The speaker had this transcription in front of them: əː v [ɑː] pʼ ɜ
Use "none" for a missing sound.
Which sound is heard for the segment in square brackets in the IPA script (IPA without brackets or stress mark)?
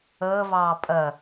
ɑː